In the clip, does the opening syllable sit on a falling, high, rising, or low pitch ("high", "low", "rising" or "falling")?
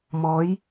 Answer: rising